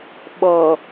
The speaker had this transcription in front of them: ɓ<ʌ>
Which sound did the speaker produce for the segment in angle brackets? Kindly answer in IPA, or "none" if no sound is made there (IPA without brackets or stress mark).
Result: ʌ